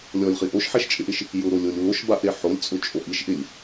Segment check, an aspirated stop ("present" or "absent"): absent